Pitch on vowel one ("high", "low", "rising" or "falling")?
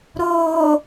low